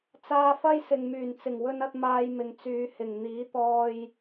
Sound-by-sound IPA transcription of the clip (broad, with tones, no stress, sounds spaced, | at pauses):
t͡s aː˧ f ɐ˥ j s ɪ˨ ŋ m yː˨˩ n t͡s ɪ˨˩ ŋ w ɵ˧ n ɐ˧ t̚ m aː˧ j m ɪ˨ ŋ t͡s yː˨˧ h ɪ˨˩ ŋ n̪ iː˨˥ t̪ ɔː˧ j